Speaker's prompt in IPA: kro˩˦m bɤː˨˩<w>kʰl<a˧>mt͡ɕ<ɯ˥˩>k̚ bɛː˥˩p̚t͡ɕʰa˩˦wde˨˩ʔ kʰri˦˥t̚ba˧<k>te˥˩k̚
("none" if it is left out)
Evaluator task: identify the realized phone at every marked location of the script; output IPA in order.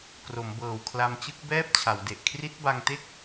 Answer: w, a˧, ɯ˥˩, ŋ

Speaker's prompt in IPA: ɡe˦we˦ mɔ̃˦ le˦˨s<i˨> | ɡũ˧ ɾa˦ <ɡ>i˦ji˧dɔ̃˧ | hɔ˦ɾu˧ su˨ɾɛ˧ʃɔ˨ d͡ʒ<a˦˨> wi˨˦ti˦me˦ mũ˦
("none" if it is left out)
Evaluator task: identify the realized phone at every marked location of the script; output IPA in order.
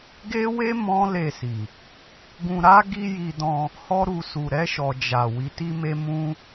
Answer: i˨, ɡ, a˨

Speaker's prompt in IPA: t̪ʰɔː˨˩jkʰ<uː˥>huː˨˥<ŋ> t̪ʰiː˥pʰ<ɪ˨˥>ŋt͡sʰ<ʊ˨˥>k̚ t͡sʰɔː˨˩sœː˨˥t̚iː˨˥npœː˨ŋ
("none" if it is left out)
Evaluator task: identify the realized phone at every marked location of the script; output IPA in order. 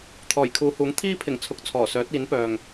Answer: uː˨˧, ŋ, ɪ˨˩, ʊ˨˥

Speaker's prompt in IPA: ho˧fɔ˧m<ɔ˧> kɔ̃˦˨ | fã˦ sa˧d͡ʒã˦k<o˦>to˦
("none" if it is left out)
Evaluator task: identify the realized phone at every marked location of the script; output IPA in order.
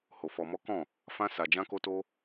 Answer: ɔ˦, o˦

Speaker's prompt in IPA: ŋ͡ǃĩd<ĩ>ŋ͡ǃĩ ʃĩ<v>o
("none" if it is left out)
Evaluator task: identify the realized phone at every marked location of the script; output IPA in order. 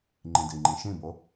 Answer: i, b

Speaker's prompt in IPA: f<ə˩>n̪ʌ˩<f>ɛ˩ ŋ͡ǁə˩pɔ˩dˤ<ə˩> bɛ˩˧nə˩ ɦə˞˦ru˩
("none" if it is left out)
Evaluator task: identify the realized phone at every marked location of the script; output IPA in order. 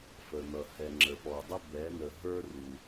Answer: ə˩, h, ə˦

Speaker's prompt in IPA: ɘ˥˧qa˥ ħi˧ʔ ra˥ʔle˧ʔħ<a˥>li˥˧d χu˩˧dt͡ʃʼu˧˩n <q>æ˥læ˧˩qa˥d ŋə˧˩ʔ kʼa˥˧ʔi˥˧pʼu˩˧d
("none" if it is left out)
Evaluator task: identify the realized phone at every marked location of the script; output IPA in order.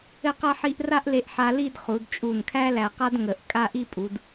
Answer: a˧, kʰ

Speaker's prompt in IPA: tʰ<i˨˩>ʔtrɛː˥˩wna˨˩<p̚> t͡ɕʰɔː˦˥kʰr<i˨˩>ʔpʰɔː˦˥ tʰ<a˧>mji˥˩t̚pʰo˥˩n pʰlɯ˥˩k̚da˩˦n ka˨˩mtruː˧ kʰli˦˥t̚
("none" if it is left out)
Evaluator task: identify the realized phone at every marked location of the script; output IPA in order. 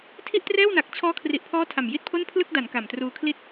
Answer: i˥˩, k̚, i˨˩, a˨˩

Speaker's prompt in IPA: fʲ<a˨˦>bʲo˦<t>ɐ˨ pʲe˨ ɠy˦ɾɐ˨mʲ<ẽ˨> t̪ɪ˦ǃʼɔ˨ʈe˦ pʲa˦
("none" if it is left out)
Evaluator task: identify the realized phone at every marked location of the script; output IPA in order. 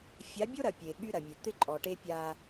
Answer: a˨˦, ɾ, e˨

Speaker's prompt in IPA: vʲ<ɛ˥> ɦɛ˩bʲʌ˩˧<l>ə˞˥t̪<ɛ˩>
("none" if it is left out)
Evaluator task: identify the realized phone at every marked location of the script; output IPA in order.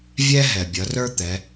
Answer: ɛ˧, r, ɛ˩˧

